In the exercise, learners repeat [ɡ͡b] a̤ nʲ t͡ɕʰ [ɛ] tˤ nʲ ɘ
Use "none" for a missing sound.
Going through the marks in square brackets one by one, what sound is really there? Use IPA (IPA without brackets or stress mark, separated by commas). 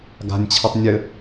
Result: ɡ, ɘ